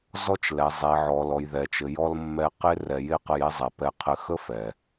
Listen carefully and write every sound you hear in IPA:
z ɔ˧ t͡ʃ l ɛ˩ zˤ e˩ ʕ ɔ˩ l ɔ˩ j ð ɛ˩ t͡ʃ ɘ˩ j ɔ˧ l mː ɛ˧ q e˧ r ɛ˩ j e˥ q ə˧ j e˥ zˤ ɛ˩ p ɛ˧ qʰ ɘ˧ x ə˥ f ɛ˩

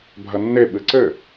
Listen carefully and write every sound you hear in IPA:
bʱ ɐ nː e ɓ ɨ ǀ ɘ

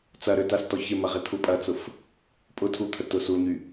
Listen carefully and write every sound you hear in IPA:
t͡s ɐ ɾ ø t a s t ɔ ç ɪ m ɐ ʁ ɪ t̪ʰ u pʼ ɐ t͡s ʊ f | pʼ ʊ tʰ u t̪ʰ ə t ʊ s u o̯ ɲ y

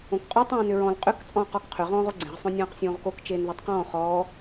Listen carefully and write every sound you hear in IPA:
õ k qʼ o tˤ ẽː n ʏ ɹ ɔ̃ l qʼ ʏ k t͡sʼ ɔ̃ː q ɔ k qʰ ʏ ʁ ɔ̃ː ʁ o ɡ͡ǀ ẽ ʁ sˤ õ nʲ ɔ̃ː q sʲ õː ʁ k o k t͡ʃ eː n ð e tˤ q ɔ̃ː χ ɔː

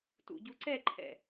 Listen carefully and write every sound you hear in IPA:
t ṵ ɟ u ǀ ɛ ǃʰ ɛ̰

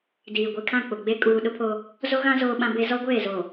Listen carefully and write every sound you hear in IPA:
d iː˨ ɡʷ i˨ kʰ ã˦˨ k͡p ʊ˨ ɡ͡b e˦ kʼ uː˦ ɗ ʊ˦ pʰ oː˦ | z o˦ ɣ ã˦ z oː˦ ɓ ã˦ b e˦ z ɔ˦ ɡʷ eː˦˨ z oː˨

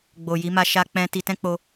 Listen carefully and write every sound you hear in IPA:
ɡ͡b o˨ j i˨˦ m a˦ ʃ a˦ k͡p ɛ̃˦ t i˧ t ɛ̃˦ k͡p o˧

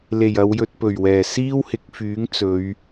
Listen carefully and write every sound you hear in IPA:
l e˨˩ j ɐ˨˧ w j ɵ˧ t̚ p ɵ˨˩ ɥ w ɛː˨˩ s iː˥ w h ɪ˨˥ k̚ f yː˨˥ ŋ t͡s ɵ˨˧ ɥ

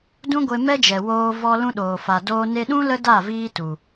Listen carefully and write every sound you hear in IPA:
d ũ˦ ɡʷ e˧ m ɛ˦ d͡ʒ ɛ˨ w oː˧ v ɔ˧ l ũ˦ ɗ oː˨ f a˨ d oː˦ n e˧ ɗ ũ˦ l ə˦ d a˦˨ v iː˦ t u˨

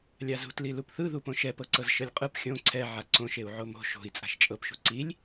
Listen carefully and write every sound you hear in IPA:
lʲ a z ṳ t l i l u p θ ɯ ð u p õ ʃ ɛ p ɤ ǀ ɤ z ʃ ɤ lʲ qʼ ɯ p xʲ õ ǀʰ ɛ ʕ a ǀ õ ʃ e u̯ ʕ o m o̤ ʃ o̤ i̯ t͡sʼ a̤ ʃ t͡ʃʼ ɤ p ʃ ṳ ǀ i lʲ

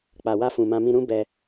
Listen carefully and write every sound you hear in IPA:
k͡p a˨ w a˧ f ũ˨ m ã˧ m ĩ˧ ɾ ũ˦ b ɛ˧

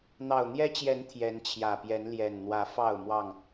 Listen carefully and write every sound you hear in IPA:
n̪ ɑ˨˩ ʊ̯ n̪ j ɛ˦ t͡ɕ j ɛ˨˦ n t̪ʰ j ɛ˨˦ n t͡ɕʰ j ä˨˩ p j ɛ˨˦ n l j ɛ˨˩ n n̪ w ä˨˦ f ɑ˥˨ ʊ̯ m w ɑ˥˨ ŋ

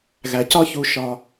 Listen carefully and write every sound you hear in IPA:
ɣ æ˩ c ɒ˦ ç u˨ ʃ ɒ˩

